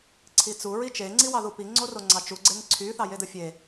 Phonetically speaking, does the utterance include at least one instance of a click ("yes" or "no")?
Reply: yes